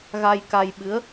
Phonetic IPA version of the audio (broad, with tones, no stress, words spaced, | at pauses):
ɣa˧jka˧j ɓɨ˨˦ə̯